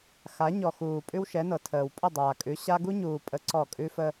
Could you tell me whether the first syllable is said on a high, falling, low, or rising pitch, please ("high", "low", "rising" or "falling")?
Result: rising